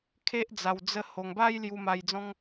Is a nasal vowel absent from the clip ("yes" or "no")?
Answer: no